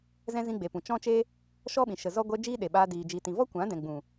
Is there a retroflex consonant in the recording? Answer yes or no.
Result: no